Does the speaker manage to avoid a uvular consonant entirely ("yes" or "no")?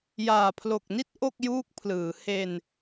yes